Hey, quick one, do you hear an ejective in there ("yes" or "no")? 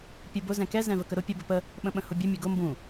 no